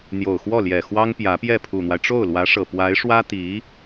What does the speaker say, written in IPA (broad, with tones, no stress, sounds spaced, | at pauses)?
n̪ j o˨˩ ʊ̯ x w ɔ˥˩ l j ɛ˨˩ x w ɑ˥ ŋ p j ä˧˥ p j ɛ˥˩ pʰ u˨˩ n̪ w a˦ ɪ̯ ʈ͡ʂ o˥˩ ʊ̯ l w ä˧˥ ʂ ɤ˨˩ p w a˧˥ ɪ̯ ʂ w ä˥ t̪ i˧˥